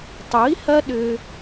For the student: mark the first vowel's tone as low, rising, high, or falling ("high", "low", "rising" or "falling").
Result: rising